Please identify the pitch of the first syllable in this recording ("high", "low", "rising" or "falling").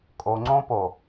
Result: low